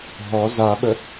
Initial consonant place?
glottal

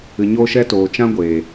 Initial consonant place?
palatal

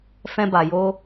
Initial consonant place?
labial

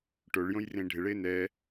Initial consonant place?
retroflex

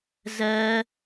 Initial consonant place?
alveolar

